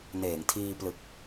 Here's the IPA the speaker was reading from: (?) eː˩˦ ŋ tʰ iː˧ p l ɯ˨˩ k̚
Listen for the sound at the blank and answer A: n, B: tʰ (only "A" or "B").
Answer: A